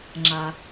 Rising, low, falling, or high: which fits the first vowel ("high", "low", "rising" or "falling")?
low